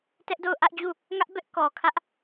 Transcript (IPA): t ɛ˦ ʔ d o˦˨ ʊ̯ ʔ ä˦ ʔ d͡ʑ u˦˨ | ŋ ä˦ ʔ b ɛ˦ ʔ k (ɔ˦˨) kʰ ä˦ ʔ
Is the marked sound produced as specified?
no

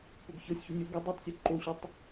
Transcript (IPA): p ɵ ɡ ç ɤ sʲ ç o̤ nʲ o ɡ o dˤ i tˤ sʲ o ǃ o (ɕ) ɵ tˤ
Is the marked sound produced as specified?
yes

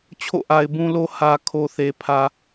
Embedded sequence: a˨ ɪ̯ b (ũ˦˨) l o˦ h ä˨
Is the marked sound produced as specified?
no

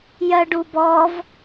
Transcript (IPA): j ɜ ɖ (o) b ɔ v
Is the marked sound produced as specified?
no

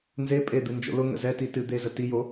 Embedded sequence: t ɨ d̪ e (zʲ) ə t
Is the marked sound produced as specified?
no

